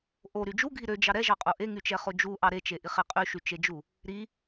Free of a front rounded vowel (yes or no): no